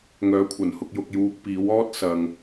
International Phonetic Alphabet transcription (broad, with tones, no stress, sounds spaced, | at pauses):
ŋ œː˨˥ kʷʰ ɐ˨˩ n h ʊ˧ k̚ j ʊ˧ k̚ j uː˧ k̚ p iː˨˥ w ɔː˥ t̚ s ɐ˨ ŋ